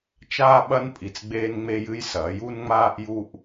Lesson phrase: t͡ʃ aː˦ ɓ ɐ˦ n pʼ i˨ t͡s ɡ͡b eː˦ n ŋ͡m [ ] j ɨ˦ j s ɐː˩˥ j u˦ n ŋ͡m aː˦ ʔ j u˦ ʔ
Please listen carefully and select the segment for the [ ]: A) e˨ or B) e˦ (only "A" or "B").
B